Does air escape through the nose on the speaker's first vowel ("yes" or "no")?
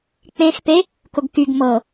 yes